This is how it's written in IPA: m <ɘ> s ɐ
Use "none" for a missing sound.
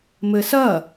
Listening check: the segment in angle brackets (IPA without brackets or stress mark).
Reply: ɘ